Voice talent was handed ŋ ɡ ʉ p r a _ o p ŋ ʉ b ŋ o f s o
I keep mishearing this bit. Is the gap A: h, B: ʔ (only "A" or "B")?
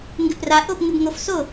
B